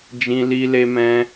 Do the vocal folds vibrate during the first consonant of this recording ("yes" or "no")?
yes